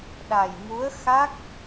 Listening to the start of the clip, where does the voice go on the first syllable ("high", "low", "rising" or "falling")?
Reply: low